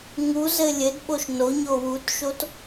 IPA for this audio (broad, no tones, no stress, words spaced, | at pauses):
ŋuzɘ lʲɘdɓoʃ noɲo wutʃot